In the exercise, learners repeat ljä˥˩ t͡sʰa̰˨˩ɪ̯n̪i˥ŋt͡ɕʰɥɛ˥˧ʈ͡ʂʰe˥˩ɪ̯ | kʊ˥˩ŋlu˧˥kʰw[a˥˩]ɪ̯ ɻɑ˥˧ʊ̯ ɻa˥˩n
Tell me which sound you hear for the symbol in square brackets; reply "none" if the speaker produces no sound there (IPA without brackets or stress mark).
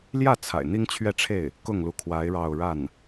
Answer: a˧˥